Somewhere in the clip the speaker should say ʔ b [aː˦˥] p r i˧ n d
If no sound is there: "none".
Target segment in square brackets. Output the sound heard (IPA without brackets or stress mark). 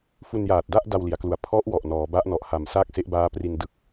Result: aː˦˥